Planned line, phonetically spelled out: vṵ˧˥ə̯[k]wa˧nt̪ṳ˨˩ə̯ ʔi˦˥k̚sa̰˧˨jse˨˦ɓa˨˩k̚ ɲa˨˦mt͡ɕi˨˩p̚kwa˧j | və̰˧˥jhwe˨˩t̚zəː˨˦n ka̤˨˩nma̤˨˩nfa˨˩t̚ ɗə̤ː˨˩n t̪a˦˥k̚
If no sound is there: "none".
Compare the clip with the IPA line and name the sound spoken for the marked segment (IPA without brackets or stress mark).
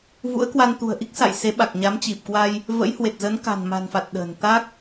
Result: k